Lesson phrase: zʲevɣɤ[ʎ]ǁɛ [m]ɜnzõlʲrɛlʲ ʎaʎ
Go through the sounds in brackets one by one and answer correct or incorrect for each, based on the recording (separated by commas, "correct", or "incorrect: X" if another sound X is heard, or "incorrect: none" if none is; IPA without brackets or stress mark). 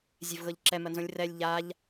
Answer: correct, correct